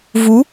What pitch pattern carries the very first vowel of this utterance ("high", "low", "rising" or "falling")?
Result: rising